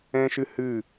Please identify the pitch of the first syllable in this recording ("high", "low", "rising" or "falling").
high